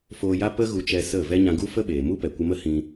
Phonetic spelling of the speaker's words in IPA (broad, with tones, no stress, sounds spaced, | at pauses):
f oː˧ j a˦ p ə˦ ɣ u˧ t͡ʃ ɛ˧ s ə˦˨ v ɛ˦ ɲ ã˧ ɡ u˦ f ə˦ ɓ eː˨ m u˦ p ɛ˨ kʷ ə˧ m ə˦ h ĩ˧